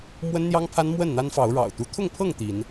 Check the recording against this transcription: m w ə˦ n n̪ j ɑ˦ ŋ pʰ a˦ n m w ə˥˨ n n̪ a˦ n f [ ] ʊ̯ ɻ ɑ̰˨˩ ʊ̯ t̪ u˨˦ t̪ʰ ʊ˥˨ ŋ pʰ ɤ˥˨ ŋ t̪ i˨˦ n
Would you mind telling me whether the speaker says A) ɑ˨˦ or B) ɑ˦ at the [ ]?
A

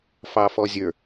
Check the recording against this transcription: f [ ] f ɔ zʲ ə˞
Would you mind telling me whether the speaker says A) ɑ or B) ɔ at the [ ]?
A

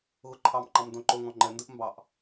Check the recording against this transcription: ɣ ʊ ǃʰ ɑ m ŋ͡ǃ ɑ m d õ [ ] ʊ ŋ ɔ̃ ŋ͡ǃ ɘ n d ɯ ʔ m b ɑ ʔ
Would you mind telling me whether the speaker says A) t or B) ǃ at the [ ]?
B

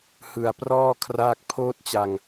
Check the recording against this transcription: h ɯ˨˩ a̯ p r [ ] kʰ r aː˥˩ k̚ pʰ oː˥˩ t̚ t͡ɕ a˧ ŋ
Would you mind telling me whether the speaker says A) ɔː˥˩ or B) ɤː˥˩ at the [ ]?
A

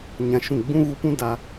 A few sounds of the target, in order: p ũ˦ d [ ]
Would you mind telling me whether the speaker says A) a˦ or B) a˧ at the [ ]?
B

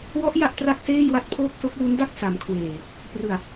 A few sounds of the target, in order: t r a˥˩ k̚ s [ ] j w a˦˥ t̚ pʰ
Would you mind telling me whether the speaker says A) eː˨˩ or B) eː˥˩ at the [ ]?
B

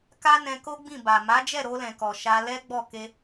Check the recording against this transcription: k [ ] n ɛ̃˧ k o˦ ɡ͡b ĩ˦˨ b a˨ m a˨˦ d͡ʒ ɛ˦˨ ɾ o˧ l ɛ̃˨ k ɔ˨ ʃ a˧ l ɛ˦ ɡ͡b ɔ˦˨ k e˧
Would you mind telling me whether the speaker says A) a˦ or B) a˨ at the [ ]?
A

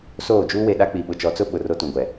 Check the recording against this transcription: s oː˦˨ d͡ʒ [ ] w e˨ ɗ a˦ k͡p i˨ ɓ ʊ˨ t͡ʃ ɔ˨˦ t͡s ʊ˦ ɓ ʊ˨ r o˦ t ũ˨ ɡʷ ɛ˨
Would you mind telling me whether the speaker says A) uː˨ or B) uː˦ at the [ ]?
B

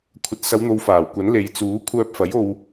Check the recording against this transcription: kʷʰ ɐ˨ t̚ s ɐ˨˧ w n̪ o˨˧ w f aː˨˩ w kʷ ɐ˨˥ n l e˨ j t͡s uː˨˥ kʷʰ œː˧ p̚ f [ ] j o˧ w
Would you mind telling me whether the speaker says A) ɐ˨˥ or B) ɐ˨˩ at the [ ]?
A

